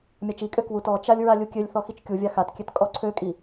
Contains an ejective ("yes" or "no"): yes